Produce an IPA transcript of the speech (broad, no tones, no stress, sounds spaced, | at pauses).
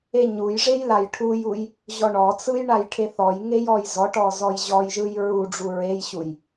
e ɲ u j ʐ e j l a j ʈʰ u j u j | ʑ ɔ ɳ ɔ t͡s ɯ j ɳ a j ʈʰ e θ ɔ j ŋ e j ɔ j z ɔ ʈ ɔ z ɔ j ʑ ɔ j ʒ ɯ j ɹ u ɖ͡ʐ u ɹ e j ɕ u j